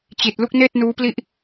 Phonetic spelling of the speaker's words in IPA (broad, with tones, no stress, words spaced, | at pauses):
t͡ɕi˨˩t̚ lu˥˩k̚neː˥˩t̚ nuː˦˥pli˥˩ʔ